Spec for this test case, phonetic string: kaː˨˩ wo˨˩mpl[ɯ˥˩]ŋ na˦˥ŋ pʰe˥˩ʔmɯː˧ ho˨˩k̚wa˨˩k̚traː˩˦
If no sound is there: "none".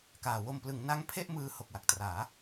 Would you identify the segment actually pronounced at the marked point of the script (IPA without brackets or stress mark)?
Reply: ɯ˩˦